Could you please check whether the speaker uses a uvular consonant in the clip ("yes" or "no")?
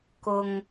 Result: no